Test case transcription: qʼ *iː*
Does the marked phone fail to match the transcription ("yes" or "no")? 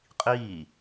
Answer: no